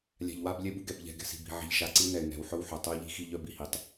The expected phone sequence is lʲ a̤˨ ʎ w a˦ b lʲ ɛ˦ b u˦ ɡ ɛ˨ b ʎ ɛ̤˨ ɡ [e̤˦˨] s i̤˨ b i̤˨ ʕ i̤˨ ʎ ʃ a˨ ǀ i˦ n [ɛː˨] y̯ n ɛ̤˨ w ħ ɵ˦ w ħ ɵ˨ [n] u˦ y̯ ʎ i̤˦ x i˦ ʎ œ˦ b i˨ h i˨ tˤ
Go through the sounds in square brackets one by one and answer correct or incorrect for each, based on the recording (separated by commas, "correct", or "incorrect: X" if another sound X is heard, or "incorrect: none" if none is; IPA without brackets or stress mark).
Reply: incorrect: ɛ̤˦˨, incorrect: ɛ˨, incorrect: tˤ